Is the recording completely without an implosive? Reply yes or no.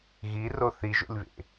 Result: yes